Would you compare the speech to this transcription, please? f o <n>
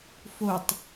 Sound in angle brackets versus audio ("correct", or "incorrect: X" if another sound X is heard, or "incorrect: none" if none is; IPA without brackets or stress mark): incorrect: tˤ